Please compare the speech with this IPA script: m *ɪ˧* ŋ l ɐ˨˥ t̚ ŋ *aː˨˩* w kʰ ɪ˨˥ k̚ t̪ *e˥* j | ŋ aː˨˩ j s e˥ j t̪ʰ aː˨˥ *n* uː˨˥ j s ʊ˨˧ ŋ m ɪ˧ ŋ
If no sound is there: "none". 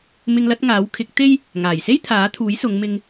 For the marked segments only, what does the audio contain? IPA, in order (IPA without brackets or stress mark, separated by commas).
ɪ˧, aː˨˥, e˥, t̪ʰ